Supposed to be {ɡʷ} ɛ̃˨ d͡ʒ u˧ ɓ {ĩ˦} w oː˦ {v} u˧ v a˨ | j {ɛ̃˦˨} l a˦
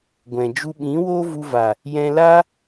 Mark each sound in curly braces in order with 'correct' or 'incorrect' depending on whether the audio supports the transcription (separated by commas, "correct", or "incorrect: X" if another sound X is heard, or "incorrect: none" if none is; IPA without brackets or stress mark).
correct, incorrect: ĩ˨˦, correct, incorrect: ɛ̃˧